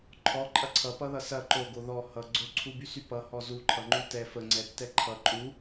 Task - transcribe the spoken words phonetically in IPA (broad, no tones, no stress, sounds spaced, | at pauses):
ǃʰ ɔ ǃʼ ɐ ǀʰ ʌ p ʌ ð ʌ s ɐ ǃ o ɡ o ð ɔ h ʌ ɡ͡ǀ o ǀʰ u b y s y p ʌ h ɔ z u ǃʰ ʌ ŋ͡ǃ u t ɛ f ə ŋ͡ǀ ɛ tː ɛ ǃʰ ʌ ǃʼ u